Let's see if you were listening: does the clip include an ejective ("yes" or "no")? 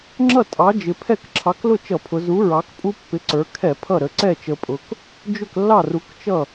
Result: yes